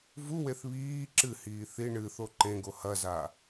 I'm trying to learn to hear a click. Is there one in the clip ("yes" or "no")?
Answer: yes